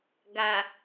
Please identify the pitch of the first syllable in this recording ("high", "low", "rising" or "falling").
low